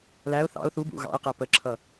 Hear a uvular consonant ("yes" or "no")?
yes